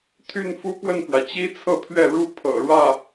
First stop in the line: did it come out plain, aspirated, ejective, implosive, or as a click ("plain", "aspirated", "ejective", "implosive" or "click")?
aspirated